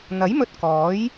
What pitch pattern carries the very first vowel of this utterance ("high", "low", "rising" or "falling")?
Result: rising